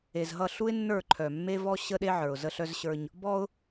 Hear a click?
yes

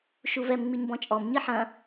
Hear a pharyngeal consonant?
yes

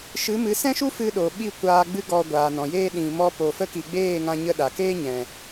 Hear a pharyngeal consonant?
no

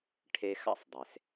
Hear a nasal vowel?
no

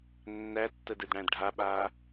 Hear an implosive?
yes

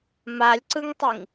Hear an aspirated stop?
no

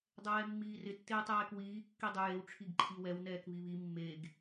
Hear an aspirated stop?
yes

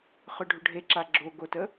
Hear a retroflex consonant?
yes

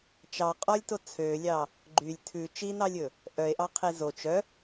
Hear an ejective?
yes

